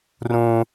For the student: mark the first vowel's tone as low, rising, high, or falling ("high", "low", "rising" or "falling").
high